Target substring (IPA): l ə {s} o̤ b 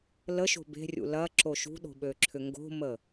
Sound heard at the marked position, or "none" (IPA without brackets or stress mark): ʃ